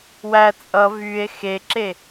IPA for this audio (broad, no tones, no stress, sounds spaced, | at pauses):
w æ t͡sʼ ʌ v y e̯ x e ǁ e